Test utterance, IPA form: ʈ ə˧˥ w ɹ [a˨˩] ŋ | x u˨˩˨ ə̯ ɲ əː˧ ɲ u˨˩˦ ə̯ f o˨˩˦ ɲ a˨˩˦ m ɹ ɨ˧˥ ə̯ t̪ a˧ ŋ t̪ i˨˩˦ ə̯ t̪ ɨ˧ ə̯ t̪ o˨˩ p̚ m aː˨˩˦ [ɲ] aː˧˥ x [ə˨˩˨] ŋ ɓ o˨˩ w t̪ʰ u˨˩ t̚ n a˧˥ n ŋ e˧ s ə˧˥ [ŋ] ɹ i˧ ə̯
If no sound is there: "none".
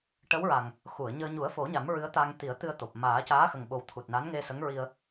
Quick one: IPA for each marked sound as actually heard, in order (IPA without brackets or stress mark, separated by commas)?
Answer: a˨˩, c, ə˨˩, ŋ